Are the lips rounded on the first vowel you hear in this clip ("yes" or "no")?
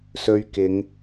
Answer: yes